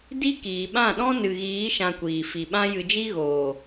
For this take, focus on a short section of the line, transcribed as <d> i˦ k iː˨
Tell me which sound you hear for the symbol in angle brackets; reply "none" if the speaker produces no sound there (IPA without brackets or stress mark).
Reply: d